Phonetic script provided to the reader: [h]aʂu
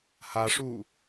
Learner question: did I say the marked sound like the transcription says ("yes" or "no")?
yes